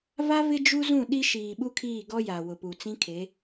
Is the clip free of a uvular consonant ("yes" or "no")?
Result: yes